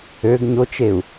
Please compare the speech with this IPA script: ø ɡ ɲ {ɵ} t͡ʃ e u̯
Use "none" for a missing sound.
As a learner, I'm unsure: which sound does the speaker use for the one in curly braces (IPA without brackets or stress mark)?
o